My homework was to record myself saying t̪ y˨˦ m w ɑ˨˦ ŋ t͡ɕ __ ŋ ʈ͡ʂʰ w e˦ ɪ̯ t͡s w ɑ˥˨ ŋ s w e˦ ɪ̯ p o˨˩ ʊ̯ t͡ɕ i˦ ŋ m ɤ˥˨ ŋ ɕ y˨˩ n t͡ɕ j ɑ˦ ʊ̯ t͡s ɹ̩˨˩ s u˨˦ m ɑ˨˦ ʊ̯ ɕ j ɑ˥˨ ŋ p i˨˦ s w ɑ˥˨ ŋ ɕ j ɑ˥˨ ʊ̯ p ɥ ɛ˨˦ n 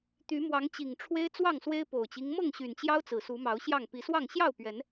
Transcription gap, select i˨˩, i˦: i˨˩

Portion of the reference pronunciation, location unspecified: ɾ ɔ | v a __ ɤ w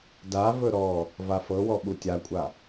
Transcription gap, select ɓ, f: f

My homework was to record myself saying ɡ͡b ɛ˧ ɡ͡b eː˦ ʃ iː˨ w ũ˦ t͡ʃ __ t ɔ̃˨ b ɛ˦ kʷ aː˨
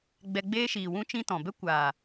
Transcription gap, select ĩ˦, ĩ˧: ĩ˧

